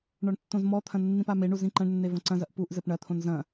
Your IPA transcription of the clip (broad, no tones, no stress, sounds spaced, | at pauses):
ɳ ɔ ɳ tː õ z m ɔ t̪ʰ ɐ̃ nː ĩ p a m e ɳ u z ĩ ǃ ɐ̃ ɳ nː e v ɐ̃ ǀ ɐ̃ z ɐ ʔ p u ʔ z ɘ p ɳ ɐ t̪ʰ õ n z ɐ̃